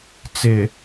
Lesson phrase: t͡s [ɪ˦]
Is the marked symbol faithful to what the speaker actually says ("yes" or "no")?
no